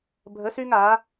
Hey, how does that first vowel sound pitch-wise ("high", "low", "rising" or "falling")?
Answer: rising